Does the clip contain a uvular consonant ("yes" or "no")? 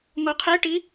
yes